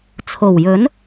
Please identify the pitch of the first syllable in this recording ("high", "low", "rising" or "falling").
low